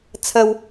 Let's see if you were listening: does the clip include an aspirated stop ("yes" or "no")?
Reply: yes